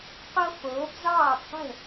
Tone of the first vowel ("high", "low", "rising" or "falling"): high